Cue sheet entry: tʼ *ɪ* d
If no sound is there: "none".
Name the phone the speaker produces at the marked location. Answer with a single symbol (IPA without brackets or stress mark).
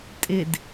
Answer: ɪ